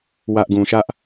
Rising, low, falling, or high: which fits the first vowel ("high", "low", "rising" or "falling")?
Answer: high